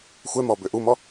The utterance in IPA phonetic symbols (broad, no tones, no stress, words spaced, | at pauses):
xʷɛmɔ bʏʔumɔ